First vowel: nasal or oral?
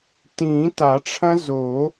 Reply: nasal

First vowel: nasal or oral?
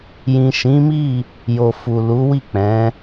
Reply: nasal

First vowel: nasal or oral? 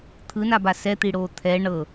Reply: oral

